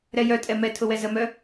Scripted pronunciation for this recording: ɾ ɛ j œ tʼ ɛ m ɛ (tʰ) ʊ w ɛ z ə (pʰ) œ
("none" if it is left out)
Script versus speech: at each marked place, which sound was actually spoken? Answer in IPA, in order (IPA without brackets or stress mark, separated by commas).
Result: tʰ, m